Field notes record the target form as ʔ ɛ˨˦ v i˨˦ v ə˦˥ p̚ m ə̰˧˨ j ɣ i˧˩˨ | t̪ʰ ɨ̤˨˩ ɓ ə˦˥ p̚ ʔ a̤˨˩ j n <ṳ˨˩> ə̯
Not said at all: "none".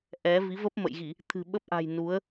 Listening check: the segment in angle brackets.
u˨˦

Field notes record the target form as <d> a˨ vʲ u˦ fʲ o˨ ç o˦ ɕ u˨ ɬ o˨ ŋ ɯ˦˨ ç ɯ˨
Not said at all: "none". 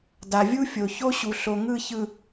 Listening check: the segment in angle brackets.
d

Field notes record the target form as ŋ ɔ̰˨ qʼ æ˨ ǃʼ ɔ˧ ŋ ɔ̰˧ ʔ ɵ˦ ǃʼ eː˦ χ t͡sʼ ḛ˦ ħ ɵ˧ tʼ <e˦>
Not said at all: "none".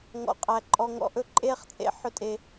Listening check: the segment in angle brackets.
e˨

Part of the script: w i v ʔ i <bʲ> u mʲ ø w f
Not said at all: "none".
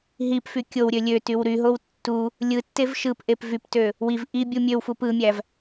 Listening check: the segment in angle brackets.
bʲ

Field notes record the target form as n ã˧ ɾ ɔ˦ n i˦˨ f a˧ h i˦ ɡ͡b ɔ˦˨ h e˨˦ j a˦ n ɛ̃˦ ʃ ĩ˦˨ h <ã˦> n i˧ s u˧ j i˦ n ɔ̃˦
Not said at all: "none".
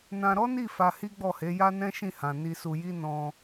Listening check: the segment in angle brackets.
ã˨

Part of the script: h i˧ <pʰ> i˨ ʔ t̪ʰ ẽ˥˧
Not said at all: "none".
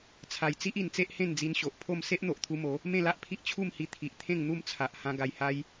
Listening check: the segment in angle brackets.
t̪ʰ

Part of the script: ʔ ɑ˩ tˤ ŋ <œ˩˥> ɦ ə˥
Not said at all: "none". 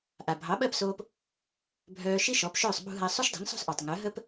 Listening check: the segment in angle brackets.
œ˩˥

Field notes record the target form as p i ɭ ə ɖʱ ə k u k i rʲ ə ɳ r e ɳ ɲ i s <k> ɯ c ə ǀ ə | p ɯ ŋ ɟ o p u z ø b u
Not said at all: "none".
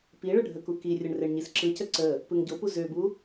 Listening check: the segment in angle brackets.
ǁ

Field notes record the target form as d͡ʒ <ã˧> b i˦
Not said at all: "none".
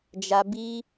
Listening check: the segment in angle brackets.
a˧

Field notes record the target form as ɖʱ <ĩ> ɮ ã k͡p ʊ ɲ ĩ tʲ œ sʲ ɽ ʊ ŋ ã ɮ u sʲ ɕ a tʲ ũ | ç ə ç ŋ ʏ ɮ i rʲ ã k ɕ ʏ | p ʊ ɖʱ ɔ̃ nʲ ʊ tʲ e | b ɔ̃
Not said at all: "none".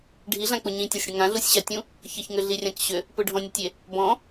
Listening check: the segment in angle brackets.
i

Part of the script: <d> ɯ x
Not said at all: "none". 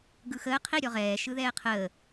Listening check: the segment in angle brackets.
ɡ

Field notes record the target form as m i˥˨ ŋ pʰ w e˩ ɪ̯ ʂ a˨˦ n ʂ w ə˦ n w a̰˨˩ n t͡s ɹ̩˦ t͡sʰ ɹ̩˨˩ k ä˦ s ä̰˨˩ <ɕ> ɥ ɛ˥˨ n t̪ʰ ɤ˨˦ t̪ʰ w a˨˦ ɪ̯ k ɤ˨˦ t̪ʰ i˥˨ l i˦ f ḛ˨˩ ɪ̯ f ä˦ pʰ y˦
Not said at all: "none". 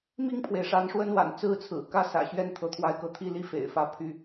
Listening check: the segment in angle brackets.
ɕ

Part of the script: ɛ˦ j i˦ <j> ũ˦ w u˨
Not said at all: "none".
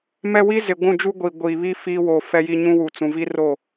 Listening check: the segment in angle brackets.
ɲ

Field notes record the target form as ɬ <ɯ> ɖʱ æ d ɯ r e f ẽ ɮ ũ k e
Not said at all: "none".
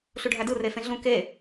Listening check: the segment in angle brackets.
u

